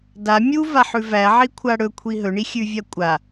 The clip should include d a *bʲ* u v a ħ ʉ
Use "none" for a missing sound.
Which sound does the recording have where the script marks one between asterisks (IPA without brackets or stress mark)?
mʲ